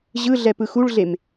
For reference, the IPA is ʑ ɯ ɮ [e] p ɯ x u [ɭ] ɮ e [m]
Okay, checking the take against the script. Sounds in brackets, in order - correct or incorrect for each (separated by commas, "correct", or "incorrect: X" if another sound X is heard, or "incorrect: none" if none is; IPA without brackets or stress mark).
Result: incorrect: ɛ, correct, correct